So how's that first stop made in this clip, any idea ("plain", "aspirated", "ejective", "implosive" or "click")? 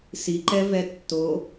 click